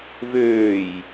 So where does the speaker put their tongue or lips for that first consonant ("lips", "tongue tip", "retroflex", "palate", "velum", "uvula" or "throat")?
lips